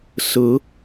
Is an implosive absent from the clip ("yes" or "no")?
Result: yes